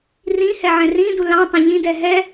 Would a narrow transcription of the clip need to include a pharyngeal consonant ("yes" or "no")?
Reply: yes